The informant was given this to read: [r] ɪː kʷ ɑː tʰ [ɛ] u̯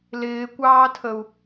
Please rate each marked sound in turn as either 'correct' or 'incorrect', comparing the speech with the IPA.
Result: incorrect: l, incorrect: ə

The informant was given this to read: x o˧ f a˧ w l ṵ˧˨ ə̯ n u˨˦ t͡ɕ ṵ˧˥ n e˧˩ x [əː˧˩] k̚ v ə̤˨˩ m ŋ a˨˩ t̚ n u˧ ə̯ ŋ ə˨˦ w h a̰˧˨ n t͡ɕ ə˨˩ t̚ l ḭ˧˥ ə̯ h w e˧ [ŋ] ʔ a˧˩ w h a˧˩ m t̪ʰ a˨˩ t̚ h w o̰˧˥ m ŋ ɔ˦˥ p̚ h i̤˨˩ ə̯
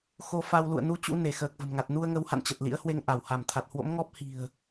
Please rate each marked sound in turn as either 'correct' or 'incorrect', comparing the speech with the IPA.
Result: incorrect: əː˨˩, correct

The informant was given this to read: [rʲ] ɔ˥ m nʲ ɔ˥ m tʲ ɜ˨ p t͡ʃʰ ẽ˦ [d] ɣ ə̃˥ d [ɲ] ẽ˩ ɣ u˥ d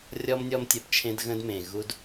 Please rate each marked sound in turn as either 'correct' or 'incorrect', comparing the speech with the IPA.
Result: correct, correct, incorrect: m

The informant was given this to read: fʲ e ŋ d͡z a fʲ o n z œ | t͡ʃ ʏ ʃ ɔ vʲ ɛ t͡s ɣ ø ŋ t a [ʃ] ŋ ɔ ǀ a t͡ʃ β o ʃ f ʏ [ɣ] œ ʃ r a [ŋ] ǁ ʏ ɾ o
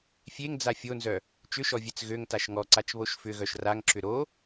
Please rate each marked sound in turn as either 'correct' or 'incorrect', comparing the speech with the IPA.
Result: correct, correct, correct

